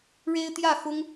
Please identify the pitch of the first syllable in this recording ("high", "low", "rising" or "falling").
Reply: high